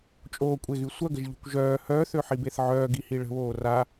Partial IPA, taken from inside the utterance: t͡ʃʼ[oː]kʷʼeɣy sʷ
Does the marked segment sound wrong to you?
no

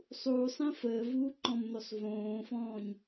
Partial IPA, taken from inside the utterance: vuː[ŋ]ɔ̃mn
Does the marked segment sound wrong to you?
yes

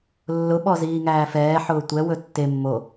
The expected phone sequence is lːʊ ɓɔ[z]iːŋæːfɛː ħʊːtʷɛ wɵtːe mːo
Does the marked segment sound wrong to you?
no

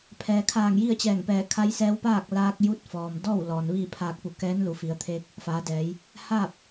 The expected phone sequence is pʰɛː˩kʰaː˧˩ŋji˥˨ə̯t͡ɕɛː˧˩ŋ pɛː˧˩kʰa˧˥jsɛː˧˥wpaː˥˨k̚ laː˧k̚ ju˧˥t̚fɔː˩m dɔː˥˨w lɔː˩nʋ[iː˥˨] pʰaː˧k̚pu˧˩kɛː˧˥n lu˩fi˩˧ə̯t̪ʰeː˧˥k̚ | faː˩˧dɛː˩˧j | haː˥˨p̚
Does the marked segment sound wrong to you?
no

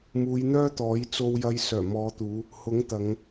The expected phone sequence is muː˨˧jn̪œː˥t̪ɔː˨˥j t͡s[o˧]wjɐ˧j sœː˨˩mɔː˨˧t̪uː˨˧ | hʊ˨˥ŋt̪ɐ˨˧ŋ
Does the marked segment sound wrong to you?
no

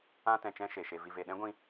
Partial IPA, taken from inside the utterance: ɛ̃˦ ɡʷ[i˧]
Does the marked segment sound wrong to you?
yes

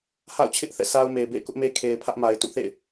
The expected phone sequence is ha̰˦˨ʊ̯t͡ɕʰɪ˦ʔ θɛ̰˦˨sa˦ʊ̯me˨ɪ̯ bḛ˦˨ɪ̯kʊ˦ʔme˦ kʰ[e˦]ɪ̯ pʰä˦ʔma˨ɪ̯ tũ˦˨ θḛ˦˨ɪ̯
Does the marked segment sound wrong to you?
yes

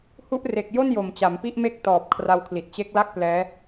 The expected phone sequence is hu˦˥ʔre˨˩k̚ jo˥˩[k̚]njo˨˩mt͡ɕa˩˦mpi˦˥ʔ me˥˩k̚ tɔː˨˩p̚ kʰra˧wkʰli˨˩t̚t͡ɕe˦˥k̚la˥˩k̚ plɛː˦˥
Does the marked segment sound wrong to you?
yes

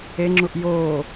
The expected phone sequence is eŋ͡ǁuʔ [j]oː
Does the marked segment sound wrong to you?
no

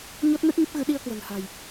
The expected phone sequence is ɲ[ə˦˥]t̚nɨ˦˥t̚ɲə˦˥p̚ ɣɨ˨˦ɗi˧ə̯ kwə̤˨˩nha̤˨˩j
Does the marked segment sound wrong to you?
yes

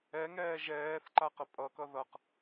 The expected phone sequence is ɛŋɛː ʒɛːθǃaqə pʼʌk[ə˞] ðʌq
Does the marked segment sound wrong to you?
yes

